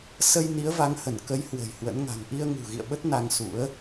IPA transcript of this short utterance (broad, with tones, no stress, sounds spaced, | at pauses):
s ə˧ j n i˨˦ ə̯ v a˨˦ ŋ h ə˧˩ n k ə˨˦ j h w ə̤˨˩ j h w ə̰˧˥ n ŋ a̤˨˩ ŋ ʔ i˧ ə̯ ŋ ṳ˨˩ ɣ ḭ˧˨ ə̯ ɓ ə˦˥ t̚ n a˧ ŋ s ṵ˧˥ ə̯